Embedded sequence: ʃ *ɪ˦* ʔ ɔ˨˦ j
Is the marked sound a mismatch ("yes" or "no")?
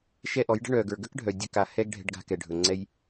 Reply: yes